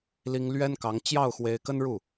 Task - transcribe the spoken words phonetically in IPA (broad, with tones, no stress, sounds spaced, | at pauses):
l i˥ ŋ l ɥ ɛ˥ n k ɑ˧˥ ŋ t͡ɕ j ɑ˥˩ ʊ̯ x w e˧˥ ɪ̯ k ə˥ n ɻ u˥˩